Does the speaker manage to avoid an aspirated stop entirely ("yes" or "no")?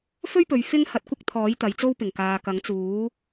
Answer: no